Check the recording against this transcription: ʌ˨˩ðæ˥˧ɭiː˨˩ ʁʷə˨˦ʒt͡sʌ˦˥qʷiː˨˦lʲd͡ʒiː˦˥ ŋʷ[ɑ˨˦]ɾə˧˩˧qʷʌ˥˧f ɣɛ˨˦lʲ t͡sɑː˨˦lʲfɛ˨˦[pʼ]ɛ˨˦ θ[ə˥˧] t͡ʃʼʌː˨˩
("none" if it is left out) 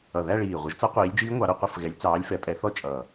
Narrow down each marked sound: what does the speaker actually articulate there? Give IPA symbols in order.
ɑ˨˦, pʼ, ɔ˥˧

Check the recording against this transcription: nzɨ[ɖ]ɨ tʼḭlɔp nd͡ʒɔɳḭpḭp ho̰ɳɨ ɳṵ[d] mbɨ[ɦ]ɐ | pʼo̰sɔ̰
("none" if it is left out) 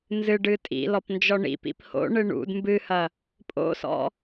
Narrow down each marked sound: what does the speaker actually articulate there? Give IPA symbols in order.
ɖ, d, h

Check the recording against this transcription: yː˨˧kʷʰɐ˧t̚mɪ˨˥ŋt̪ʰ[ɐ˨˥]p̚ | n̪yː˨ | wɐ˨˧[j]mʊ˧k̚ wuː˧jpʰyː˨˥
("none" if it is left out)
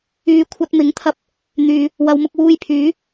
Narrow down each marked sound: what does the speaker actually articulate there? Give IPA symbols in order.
ɐ˧, w

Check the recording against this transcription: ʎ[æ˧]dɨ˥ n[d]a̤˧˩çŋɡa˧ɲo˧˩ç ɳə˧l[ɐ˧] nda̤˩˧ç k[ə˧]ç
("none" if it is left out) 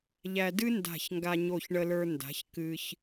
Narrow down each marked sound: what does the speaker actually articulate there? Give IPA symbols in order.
æ˧, d, ə˞˧, ɨ˧

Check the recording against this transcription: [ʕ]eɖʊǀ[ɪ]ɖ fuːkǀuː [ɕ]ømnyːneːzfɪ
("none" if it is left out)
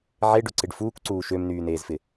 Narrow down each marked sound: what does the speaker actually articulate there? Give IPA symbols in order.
ʕ, ɪ, ʃ

